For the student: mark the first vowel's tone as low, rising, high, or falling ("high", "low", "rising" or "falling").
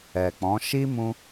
low